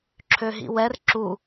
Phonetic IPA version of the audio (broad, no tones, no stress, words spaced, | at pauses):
ǁʰøɦḭwɛr ǁu